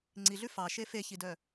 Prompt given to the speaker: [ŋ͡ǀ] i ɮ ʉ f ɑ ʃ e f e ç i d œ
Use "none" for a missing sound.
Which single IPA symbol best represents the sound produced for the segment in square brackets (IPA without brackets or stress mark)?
ŋ͡ǀ